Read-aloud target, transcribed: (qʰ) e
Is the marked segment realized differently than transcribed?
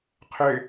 no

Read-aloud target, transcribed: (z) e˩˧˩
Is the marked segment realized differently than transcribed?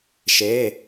yes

